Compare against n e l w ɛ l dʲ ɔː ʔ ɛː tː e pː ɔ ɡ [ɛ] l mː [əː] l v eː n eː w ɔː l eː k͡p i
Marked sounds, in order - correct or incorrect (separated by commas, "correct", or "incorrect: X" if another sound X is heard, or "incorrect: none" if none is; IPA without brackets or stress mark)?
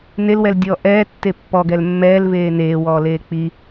correct, incorrect: ɛː